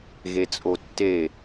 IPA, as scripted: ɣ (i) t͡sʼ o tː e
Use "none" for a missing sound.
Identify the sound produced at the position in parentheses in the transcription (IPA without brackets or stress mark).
e